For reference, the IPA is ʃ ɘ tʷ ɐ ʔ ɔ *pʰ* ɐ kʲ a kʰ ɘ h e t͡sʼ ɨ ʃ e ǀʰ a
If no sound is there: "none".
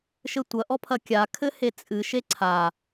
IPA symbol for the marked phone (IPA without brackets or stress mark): pʰ